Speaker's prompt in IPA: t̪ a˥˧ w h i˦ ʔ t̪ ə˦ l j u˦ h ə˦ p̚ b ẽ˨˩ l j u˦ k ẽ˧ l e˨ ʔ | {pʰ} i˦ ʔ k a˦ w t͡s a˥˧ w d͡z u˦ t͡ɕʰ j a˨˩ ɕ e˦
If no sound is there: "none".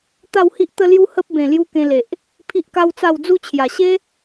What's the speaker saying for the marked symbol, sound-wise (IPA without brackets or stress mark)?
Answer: pʰ